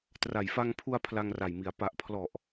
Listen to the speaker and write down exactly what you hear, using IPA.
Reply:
t r a˨˩ j f a˧ ŋ pʰ u˧ a̯ pʰ l a˧ ŋ r a˨˩ j m i˩˦ a̯ p a˨˩ ʔ pʰ l ɔ˨˩ ʔ

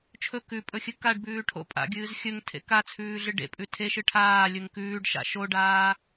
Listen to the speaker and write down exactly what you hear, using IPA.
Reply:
t͡ʃʰ ɵ k ʉ pʼ ɵ xʲ ɨ k a ɖ b ʉː ʈʰ o̰ pʼ a̰ ɡʲ ɨː z xʲ ɵ ŋ tʰ ḛ k a t͡sʰ ʉː ɮ ɨ ɖ ḛ pʼ ʉ tʰ e ʃ ɨ ʈʰ aː lʲ ɵ ŋ k ʉː ɖ ʃ a̰ ʃ o ɖ aː

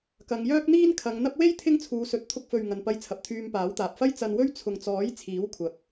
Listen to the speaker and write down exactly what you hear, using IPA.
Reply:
k ɐ˨˧ ŋ j œː˥ k̚ n̪ iː˥ n kʰ ɐ˨˧ ŋ n̪ ɐ˥ p̚ w e˥ j t̪ʰ ɪ˥ ŋ t͡sʰ uː˨˧ s ɵ˨˥ t̚ t̪ʰ ʊ˧ k̚ f ɵ˨ ɥ ŋ ɐ˨ n p ɐ˧ j t͡sʰ ɐ˨ p̚ t̪ʰ yː˧ m p aː˨˥ w t̪ aː˨ p̚ f ɐ˥ j t͡s ɐ˧ n w ɵ˥ ɥ t͡sʰ ʊ˨ ŋ t͡s ɔː˨˥ j t͡sʰ iː˨˥ w kʷʰ ɐ˨˥ k̚

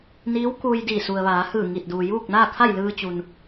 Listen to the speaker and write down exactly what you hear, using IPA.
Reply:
n iː˧˥ w k uː˧ j d iː˧˩ s u˩ ə̯ ʋ aː˩˧ h ɯː˧˩ ŋ i˧˩ t̚ d uː˩ j uː˥˨ k̚ n aː˥˨ kʰ a˥˨ j l ɯː˧ t͡ɕ u˩ n

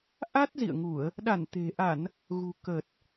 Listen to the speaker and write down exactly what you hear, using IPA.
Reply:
ʔ a˦˥ t̚ z ḭ˧˨ ə̯ ŋ u˧˩˨ ə̯ | ɗ a˧˩ n t̪ e̤˨˩ ʔ a˧˩˨ n | ɣ ṳ˨˩ k ə˨˩ t̚

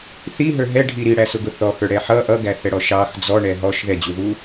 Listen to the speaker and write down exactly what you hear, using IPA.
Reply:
θ i ɦ ə˞ ɦ ɛ ɖʱ i ɾ i ɽ æ s ʊ ɡ ʊ θ ɔ x ə˞ ɽ ɛ ħ ʌ ʔ ʌ ɡ æ θ ɛ ɽ ɔ ʃ ɑ x d͡z ɔ ɳ ɛ ɦ ɔ ʃ ð ɛ d͡ʑ u ð u

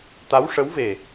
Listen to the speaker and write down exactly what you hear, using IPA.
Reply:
t̪ a˧˥ w ʂ ə˧˥ w v e˨˩

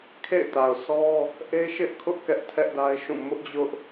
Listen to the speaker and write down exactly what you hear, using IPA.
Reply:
kʰ ḛ˦˨ ɪ̯ t a˨ ʊ̯ sʰ ɔ˦ | ʔ e˦ ʃ ɪ˦ ʔ kʰ ʊ˦ ʔ k ɛ˦ ʔ tʰ ɛ˦ ʔ d a˦ ɪ̯ ʃ ũ˦˨ m ʊ˦ ʔ d͡ʑ ʊ˦ ʔ

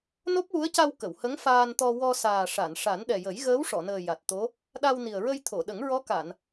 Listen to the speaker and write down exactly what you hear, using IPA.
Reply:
n o˦˥ p̚ w u˧˥ ə̯ c a˧ w k ə˨˩˨ w h ə˧˥ ŋ f aː˧ n t̪ ɔ˧ w ɔ˧ s aː˨˩ ʂ a˨˩˨ n ʂ a˨˩˦ n ɗ ɛ˨˩ j ə˨˩˦ j ɣ əː˧˥ w ʂ ɔ˨˩˨ n əː˨˩ j a˨˩ t̚ t̪ o˧˥ | ɗ a˧ w n i˨˩ ə̯ ɹ ə˧ j t̪ʰ o˨˩˨ ɗ ə˨˩˦ ŋ ɹ ɔ˧˥ k a˨˩˨ n

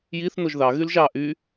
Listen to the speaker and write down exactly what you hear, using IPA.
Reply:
j i θ n o ʒ ð ɑ ɣ y l ʒ ɑ ʔ y

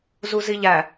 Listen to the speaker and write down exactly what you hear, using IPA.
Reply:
z u z i ʎ æ

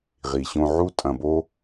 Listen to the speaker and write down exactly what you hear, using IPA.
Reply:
ʁ i˨ ɕ õ˧ ʕ u˦ tʼ ɐ̃˧ b o˦

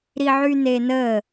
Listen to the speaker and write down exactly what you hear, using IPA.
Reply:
ɾ i ʕ y n e n ə

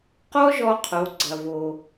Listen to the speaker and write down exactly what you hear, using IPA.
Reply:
q ɔ˥ ʒ ɔ˧ qʰ o˩˧ ɡ͡ǀ ɐ˩ v o˩

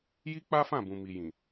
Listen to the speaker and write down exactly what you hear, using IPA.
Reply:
j i˦ k͡p a˦ f ã˦˨ b ũ˨ m i˨ j ĩ˨

